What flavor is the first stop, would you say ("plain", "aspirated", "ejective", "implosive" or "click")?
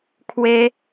aspirated